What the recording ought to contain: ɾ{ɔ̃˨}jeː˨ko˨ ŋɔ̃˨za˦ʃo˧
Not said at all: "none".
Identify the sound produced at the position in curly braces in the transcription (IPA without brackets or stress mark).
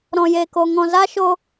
ɔ̃˨